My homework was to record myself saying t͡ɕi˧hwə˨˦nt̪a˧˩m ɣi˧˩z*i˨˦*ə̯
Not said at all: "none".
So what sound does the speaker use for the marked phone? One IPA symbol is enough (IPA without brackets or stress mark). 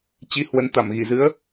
ɨ˨˦